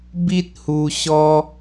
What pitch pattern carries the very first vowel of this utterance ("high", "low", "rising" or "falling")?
high